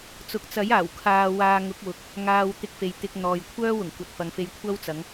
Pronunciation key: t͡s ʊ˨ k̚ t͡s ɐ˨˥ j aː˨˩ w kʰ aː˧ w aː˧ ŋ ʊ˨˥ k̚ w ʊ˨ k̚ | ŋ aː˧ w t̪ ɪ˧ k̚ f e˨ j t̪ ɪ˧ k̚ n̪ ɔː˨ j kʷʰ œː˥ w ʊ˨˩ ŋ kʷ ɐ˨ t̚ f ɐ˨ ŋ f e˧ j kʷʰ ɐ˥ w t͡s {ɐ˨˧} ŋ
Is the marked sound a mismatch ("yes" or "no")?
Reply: no